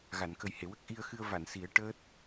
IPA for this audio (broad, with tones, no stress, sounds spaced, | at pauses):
ɣ a˨˩˨ n k ə˨˩ j h e˨˩˨ w ə˦˥ k̚ ʔ i˧ ə̯ x ɨ˧ ə̯ v a˨˩˨ n s i˨˩˦ ə̯ ʈ əː˦˥ t̚